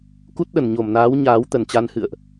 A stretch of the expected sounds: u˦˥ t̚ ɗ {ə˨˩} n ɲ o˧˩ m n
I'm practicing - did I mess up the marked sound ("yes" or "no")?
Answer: yes